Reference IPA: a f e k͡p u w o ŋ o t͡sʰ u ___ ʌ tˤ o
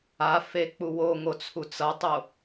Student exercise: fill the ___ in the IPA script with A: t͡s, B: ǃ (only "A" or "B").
A